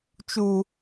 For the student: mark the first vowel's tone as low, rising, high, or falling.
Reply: high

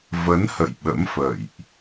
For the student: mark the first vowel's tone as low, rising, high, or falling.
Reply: rising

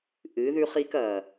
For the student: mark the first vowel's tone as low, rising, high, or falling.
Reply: rising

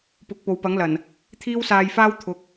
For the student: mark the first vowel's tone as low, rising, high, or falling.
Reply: rising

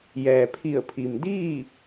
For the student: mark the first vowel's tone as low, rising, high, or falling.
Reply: low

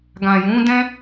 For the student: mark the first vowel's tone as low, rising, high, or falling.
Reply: low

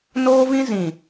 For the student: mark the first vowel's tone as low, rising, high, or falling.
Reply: high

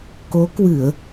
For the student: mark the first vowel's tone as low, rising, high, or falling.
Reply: rising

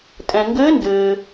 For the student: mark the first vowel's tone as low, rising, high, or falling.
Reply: low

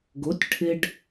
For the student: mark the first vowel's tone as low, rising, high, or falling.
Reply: rising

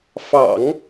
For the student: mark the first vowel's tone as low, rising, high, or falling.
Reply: low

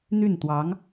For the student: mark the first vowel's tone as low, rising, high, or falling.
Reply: falling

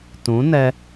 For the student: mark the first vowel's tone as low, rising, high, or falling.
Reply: rising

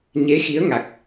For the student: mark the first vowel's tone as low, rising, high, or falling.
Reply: rising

